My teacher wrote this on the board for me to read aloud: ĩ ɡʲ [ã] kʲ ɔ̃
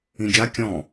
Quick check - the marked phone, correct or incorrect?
incorrect